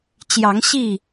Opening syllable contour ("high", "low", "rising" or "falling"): rising